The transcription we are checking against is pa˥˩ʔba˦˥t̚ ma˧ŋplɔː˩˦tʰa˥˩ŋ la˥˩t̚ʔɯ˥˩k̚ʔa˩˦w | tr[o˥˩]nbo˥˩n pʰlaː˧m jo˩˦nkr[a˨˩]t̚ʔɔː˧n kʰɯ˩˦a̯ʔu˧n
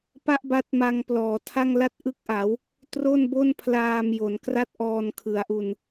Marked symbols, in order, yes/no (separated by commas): yes, no